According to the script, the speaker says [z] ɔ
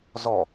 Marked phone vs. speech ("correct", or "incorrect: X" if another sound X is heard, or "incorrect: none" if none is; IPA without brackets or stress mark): correct